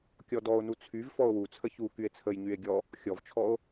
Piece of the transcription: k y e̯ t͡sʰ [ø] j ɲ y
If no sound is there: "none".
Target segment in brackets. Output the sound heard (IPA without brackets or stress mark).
ə